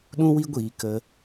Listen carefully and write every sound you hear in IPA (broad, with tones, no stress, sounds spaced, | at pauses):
ɗ ũ˦ w i˦ ɡʷ iː˧ k ə˧